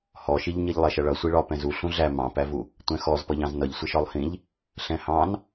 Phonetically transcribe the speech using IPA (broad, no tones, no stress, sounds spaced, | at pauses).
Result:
h ɔ ʃ i ʎ ɲ i ʎ lˠ ɛ ʃ ʌ ɭ ʌ sʷ i ɭ ɒ p ɛ̃ z u ɬ ũ ɮ æ m ɑ̃ p æ v u | tʷ ɛ̃ x ɔ z p ʌ ʎ ɑ̃ z n ʌ ʎ sʷ ɪ ʃ ɒ lˠ h ĩ ʎ | ɬ ɛ̃ h ɑ̃ n